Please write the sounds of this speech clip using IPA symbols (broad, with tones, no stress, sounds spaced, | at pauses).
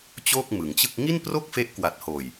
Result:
t͡ɕ o˥˩ k̚ m ɯ˩˦ ŋ t͡ɕ ɯ˥˩ k̚ ŋ i˥˩ n p r o˥˩ k̚ f e˦˥ ʔ k w a˨˩ t̚ h oː˨˩ j